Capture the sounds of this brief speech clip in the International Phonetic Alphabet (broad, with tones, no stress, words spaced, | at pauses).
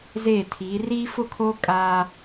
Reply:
zeː˦˨tʰiː˨˦ riː˦fʊ˦kʰoː˦ kʼaː˦